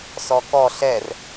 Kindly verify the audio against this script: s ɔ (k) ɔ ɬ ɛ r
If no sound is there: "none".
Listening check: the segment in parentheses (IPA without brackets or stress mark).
k